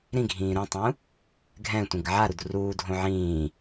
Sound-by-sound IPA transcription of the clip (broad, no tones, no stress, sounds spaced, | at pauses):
ɾ ĩ ɡʱ ĩː ɾ ũ tˤ ũ | ɡʱ ɛ̃ tʷ ĩ ɡ ʕ a ɾ u d r uː dʱ õ ʕ ĩː